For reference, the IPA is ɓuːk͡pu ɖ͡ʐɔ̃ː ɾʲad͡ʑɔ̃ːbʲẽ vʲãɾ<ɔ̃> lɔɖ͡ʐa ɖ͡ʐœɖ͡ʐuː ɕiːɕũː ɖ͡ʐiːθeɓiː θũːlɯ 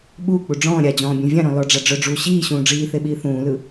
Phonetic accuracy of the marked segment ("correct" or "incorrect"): correct